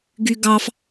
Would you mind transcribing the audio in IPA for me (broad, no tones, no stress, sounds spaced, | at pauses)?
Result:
ɡ y ɡ ɑ f